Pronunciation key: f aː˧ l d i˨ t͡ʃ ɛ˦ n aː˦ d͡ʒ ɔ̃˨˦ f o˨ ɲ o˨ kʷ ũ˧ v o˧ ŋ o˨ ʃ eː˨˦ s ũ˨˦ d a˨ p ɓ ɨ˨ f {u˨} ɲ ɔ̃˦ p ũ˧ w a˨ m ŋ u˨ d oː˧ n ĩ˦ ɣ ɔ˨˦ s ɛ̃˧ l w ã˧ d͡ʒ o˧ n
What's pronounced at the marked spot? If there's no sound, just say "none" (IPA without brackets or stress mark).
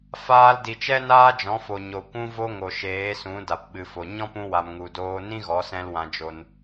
o˨